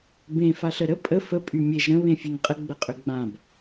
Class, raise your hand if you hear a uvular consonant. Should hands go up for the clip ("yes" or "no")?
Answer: yes